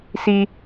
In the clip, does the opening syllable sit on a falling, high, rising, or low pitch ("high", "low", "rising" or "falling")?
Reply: low